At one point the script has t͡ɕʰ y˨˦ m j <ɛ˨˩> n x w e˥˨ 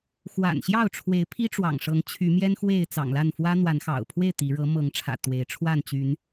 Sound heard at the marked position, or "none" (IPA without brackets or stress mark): ɛ˦